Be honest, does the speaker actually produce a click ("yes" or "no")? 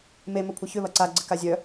yes